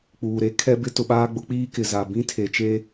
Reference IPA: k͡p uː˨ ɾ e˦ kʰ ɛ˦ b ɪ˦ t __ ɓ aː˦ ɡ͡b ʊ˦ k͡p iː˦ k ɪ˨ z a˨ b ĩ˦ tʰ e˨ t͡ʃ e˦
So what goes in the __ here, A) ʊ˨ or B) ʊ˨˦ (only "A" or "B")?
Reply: A